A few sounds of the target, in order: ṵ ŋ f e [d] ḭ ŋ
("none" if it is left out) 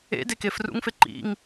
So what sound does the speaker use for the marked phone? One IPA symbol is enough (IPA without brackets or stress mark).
ǃ